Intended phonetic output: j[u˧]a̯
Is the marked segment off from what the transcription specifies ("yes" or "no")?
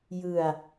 yes